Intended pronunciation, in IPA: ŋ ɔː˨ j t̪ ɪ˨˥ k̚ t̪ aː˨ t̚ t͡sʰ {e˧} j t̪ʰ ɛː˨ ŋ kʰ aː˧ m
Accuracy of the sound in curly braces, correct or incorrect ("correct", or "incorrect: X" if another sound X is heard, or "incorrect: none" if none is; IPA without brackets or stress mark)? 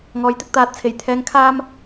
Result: incorrect: e˨˩